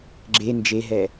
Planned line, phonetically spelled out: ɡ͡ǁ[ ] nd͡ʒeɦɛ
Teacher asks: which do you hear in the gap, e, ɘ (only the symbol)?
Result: e